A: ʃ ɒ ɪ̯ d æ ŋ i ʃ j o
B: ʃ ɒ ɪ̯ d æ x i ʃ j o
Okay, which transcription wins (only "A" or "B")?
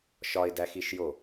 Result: B